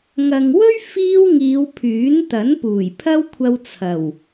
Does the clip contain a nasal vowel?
no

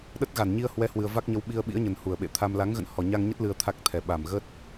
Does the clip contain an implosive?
yes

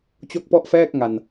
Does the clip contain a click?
no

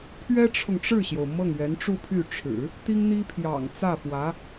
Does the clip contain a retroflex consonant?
yes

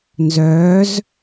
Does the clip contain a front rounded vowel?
yes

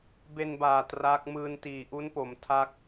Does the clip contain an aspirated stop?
yes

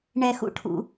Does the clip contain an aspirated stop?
yes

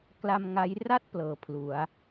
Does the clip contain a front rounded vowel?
no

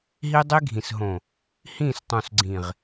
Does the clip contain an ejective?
no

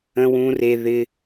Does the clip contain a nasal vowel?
yes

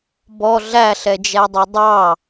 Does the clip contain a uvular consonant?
no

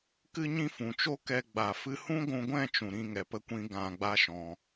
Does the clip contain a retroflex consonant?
no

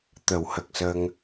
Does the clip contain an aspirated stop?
no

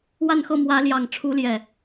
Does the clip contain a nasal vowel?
no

